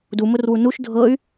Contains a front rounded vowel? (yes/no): yes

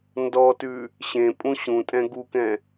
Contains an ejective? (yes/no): yes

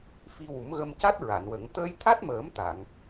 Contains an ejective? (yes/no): no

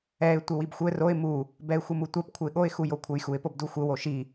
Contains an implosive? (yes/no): yes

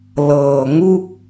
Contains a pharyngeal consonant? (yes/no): no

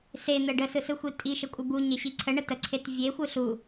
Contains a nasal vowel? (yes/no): no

